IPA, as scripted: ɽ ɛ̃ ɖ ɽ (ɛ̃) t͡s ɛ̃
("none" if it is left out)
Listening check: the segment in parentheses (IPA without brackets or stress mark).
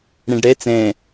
ɛ